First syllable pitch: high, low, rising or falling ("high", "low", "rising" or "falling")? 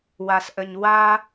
low